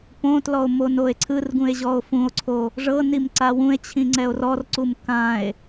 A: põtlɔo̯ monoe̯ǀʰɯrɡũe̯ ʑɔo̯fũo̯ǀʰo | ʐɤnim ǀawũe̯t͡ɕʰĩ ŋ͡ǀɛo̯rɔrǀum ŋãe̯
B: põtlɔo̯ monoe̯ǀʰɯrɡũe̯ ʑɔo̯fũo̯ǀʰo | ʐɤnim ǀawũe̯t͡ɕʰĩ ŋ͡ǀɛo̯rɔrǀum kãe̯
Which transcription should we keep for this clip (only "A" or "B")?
B